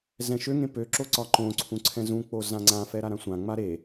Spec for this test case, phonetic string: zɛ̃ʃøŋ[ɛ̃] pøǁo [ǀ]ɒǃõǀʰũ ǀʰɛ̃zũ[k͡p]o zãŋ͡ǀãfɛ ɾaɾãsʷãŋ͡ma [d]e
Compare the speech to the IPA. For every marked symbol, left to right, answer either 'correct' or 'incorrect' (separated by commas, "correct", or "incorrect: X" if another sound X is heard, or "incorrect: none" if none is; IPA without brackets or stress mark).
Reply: incorrect: ẽ, correct, correct, incorrect: ɾ